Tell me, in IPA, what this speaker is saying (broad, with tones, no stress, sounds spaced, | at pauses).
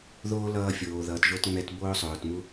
ð oː˦ l ʌː˧ fʲ oː˨ ð ʌː˨ t ʒ o˧ t ŋ͡m ɛ˧ t b oː˦ sˤ oː˨ t m u˦